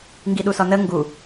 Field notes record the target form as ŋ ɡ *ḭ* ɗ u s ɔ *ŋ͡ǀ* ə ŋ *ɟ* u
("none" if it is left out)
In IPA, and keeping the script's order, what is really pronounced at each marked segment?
i, n, ɡ

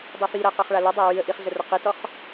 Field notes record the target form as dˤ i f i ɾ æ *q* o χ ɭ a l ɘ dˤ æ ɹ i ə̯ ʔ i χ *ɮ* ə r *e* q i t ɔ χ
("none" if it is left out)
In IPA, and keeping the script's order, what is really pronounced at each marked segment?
q, ɮ, ɘ

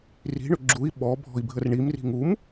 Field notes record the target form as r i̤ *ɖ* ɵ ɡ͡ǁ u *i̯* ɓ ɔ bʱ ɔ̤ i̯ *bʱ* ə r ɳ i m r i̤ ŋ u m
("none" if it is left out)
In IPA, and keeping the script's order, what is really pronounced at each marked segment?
ɳ, i̯, bʱ

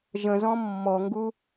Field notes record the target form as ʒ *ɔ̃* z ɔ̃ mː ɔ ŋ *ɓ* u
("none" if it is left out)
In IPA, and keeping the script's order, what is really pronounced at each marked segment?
ə̃, ɡ

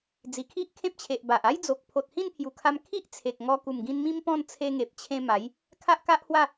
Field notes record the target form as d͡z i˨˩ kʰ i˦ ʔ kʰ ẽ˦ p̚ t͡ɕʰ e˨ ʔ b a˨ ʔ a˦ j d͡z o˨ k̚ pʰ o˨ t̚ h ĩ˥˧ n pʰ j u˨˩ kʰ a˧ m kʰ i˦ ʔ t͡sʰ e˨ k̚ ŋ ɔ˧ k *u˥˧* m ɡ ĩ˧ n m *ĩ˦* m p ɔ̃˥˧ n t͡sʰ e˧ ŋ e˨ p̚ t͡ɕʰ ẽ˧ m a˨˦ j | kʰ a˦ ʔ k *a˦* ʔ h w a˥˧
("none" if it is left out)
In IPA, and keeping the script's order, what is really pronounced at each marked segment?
u˨˩, ĩ˦, a˦

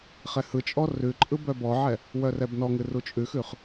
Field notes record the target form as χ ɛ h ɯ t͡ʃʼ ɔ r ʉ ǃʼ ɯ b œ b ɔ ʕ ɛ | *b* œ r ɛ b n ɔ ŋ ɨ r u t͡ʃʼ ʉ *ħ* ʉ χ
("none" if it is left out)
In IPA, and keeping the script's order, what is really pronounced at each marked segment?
w, x

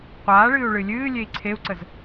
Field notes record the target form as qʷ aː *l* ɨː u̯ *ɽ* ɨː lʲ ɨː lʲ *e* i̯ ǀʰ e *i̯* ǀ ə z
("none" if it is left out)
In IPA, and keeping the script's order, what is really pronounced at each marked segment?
ɭ, ɭ, e, u̯

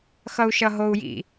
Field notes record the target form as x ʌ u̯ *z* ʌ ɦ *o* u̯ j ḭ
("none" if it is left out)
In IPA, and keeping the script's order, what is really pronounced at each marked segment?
ʃ, o

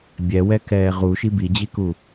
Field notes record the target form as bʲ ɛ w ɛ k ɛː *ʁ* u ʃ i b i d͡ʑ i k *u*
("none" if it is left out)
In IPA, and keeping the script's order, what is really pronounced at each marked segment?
ʁ, u

